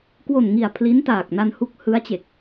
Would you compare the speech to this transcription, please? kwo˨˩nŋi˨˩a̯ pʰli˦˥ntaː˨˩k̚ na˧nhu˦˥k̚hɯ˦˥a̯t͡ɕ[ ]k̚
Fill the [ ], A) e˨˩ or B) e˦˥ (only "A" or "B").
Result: A